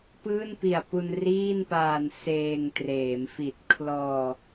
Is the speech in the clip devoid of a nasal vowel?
yes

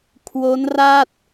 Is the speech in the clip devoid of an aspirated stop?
no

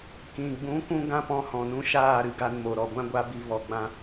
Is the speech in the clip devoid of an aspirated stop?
yes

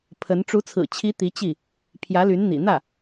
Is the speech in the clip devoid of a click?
yes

